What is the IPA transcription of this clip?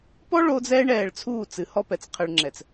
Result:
p ɔ˦ ɭ o˦ d͡z ɛː˦ ɳ ɛː˨ ɭ t͡sʰ uː˦˨ t͡s ɨ˨ h ɔ˦ p ɛ˨ t͡s qʰ ɘ˨ ɭ ŋ͡ǁ ɛ˨ t͡s

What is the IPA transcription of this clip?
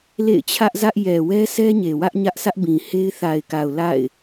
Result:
l ḛ˦˨ ɪ̯ t͡ɕʰ ä˦ ʔ z ä˦ ʔ j ɛ˨ w ɛ˦ s ɛ˦ ɲ e˨ w ä˦ ʔ ɲ ä˦ ʔ sʰ ä˦ ʔ b ĩ˨ h e˦ ɪ̯ θ a˨ ɪ̯ k a˨ ʊ̯ l a̰˦˨ ɪ̯

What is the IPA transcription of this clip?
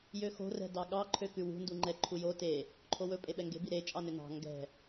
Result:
j ø x o̤ r ɛ̤ d ɑ ɠ ɑ ǃʰ ø k ʉ w ṳ n d u ŋ͡ǃ ɛ ǃʰ u j o t e | ǃʰ o w ɵ pʼ e ɓ ɛ ŋ ɡ e̤ b i ɾ e t͡ʃʼ ɑ n ø n ɑ̤ ŋ ɡ ɛ̤

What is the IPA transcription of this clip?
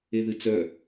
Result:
e ð ɨ t͡s œ

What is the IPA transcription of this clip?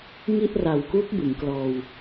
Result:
ŋ i˥˩ ʔ r a˨˩ w k u˦˥ k̚ b ɯ˩˦ ŋ k l ɔː˧ w

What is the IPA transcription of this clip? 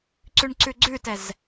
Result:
ǀ ʉ ɳ ǀ ʉ ɡ͡ǀ ʉ t ɛ z

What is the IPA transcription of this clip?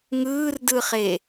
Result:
ŋ ɯː r d ɯ χ e

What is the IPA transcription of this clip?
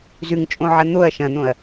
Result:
z ʉ ŋ t͡ʃʼ õ ʕ ɐ n̪ o ɐ̯ ʃ ɐ̃ n̪ õ ɐ̯

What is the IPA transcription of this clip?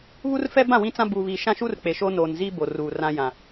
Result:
β u˦ r f ɛ˦ b ã˦˨ w ĩ˦ t͡s ã˦ b uː˨ β iː˨ ʃ ã˦ ʃ uː˦ r k͡p e˨ ʃ oː˦ n oː˨ n z iː˦ b o˨ r uː˨ r ã˦ j ã˨

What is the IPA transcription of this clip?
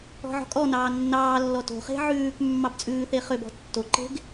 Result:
ɔ̤ ʕ ɔ̤ kʼ ɔ n ɑː nː ɑː lː ɔ t o̤ χ e̤ ʕ ʉː k mː ɑ b t͡sʼ ʉː θ e χ ø b ɔ̤ tː o ǃ e̤ ɡ

